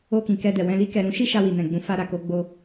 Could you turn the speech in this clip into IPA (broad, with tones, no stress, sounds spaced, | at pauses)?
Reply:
o˧ k ĩ˨ k ɛ˧ d ɛ˨ w ɛ̃˧ l i˧ k ɛ˨ ɾ ũ˧ ʃ i˦ ʃ a˧ w i˨ n ɛ̃˨ ɡ͡b ũ˨˦ f a˧ ɾ a˨ k o˧ ɡ͡b o˧